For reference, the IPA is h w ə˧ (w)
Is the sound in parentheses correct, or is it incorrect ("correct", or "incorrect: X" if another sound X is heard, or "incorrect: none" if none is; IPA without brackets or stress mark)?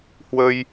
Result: incorrect: j